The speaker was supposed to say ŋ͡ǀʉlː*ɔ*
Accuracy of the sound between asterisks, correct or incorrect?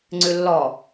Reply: correct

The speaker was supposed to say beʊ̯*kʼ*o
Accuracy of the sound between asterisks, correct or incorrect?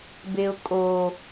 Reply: correct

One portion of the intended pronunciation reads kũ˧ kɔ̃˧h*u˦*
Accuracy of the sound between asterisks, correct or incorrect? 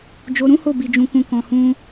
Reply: incorrect: ũ˦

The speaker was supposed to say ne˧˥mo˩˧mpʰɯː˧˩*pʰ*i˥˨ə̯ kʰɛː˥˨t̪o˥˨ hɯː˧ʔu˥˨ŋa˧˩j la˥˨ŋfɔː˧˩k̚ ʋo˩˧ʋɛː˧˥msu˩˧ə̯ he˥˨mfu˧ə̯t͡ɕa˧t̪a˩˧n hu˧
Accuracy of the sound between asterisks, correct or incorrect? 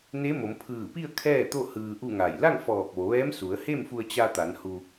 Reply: incorrect: p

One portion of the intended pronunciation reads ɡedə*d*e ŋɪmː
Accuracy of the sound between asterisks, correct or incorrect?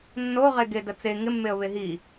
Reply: incorrect: t͡s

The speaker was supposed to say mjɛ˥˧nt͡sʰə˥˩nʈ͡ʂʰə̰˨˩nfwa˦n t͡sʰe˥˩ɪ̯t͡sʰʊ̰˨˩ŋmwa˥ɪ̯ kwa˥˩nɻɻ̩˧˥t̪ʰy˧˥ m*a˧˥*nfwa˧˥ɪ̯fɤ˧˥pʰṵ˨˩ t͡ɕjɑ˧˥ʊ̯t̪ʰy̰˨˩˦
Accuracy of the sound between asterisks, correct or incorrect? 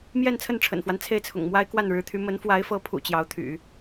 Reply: incorrect: ə˧˥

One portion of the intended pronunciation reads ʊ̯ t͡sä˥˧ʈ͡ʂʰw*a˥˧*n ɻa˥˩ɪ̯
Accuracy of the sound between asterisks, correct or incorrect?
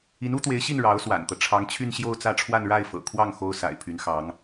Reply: correct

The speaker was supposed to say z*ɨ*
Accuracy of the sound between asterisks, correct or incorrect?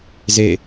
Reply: incorrect: e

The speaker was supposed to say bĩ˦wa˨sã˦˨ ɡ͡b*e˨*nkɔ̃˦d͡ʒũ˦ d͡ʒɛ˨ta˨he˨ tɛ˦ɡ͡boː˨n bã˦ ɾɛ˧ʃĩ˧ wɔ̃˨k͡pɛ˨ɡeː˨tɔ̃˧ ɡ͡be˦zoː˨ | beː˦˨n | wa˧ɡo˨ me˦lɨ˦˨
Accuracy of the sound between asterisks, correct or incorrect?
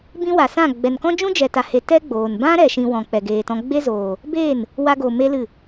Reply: incorrect: ɛ˨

